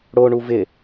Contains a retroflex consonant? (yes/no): yes